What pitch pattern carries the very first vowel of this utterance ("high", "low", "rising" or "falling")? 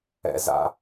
high